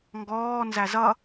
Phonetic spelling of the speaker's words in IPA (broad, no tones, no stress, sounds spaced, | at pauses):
ŋ ɡ ɔː n z æ z ʌ